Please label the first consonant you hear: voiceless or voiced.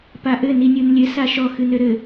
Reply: voiceless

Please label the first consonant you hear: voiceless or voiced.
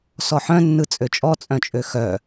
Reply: voiceless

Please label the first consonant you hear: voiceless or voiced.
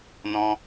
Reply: voiced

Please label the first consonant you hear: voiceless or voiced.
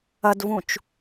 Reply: voiced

